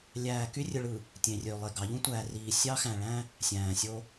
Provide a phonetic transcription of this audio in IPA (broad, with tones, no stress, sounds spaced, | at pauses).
lʲ æː˨ k y˦ rʲ ɯ˨ ɭ ɯ˨ | tʲ ẽ˨ rʲ ø˨ lˠ e˨ ɡ ɑ˨˦ ʎ ũ˦ tʷ æː˨ r iː˨ sʲ ɑ˦ x æ̃˨ ɭ æ̃˦ | sʲ æ̃ː˨ sʲ o˦